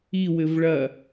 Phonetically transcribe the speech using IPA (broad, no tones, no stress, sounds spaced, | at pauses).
i w ɘ v ɭ ɐ